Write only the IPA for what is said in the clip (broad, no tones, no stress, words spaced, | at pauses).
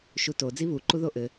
ʃuto d͡ziβuǃu ðoʔɘ